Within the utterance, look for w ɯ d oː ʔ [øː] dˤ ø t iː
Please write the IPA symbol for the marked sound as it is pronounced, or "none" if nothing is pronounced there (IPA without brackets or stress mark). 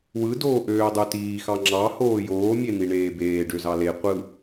øː